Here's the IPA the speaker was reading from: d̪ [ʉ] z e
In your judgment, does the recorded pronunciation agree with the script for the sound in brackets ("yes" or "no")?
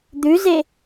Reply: yes